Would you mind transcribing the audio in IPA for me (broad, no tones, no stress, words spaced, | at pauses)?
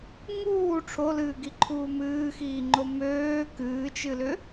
ŋuː ʈ͡ʂʰolɨːɡiǃʰuː mɨːxiːŋ͡ǃo møː kɨːt͡ʃɨlʏ